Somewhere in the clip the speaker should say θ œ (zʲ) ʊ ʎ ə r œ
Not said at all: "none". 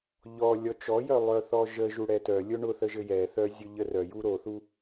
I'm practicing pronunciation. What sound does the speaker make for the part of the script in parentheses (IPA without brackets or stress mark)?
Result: zʲ